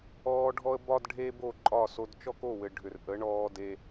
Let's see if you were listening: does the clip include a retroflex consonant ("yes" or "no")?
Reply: yes